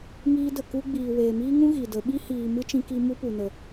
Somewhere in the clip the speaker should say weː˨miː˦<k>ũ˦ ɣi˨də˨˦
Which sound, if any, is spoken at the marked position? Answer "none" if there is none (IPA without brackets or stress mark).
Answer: ŋ